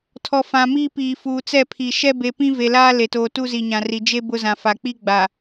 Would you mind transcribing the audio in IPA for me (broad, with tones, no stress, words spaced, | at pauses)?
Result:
tʰɔ˨ fã˨miː˦piː˨fuː˨ t͡sɛ˦˨pʰi˨ ʃɛ˦be˨pĩ˦ ve˨laː˦le˨toː˨ tu˦zi˨ɲã˨ri˨ d͡ʒe˦ bʊ˦zã˨ fa˨k͡pi˦ɡ͡ba˨